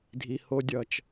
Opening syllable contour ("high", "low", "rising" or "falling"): low